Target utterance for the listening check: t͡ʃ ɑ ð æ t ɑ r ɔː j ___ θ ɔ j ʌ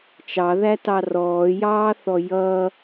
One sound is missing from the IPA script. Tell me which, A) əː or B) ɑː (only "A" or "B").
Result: B